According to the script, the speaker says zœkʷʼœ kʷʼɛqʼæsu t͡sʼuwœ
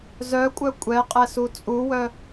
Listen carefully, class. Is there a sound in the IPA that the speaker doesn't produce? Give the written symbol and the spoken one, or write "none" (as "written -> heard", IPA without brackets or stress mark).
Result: æ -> ɛ